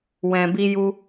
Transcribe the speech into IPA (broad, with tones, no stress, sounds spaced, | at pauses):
w ɛ̃˨ b i˧ j u˧